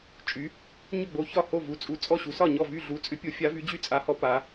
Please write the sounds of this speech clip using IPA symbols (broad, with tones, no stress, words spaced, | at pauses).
t͡ʃʼy˨˥ | ɲʏ˥˩ɡ͡bo˨˥ çɒ˥˩ho˥˩vu˨˥ t͡sʼu˨˥t͡sʼɔ˥˩ɕu˨˥sɒ˥˩ ɲɔ˥˩vy˥˩ ɮu˨˥t͡sʼʏ˨˥pʲo˨˥ fʲa˨˥vy˨˥d͡ʑy˥˩ t͡sʼa˨˥hɔ˨˥ pa˨˥